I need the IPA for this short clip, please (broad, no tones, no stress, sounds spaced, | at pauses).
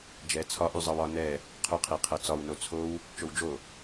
d͡ʒ ɛ t͡sʰ ɒ ʔ y zˤ ɤ w ɒ n ɛ | qʰ ʊ qʰ i qʰ ɤ t͡s ɒ w n o t͡sʰ o w | t͡ʃ o w d͡ʒ o